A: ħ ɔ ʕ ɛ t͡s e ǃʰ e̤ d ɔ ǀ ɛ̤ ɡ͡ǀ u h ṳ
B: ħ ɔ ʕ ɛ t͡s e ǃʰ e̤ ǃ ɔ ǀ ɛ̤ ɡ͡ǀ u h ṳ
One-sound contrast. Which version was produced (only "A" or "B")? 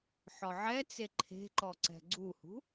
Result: B